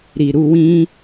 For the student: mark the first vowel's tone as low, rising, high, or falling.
low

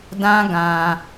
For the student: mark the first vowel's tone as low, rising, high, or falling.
high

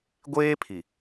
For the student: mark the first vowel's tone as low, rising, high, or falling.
high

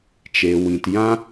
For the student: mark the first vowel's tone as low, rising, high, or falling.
low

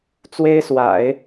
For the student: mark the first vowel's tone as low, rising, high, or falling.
high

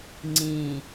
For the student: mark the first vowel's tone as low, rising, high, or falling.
low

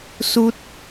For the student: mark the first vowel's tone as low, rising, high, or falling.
high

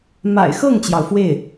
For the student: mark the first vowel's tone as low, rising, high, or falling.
low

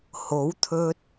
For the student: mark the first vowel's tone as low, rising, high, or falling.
rising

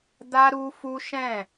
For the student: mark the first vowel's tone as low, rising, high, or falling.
high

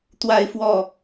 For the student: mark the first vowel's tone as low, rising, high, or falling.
high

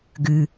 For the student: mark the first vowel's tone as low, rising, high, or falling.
low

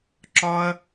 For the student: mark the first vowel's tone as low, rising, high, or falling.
high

